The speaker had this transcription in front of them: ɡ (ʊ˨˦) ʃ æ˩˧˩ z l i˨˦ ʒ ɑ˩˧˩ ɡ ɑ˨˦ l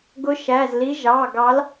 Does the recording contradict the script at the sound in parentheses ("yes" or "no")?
no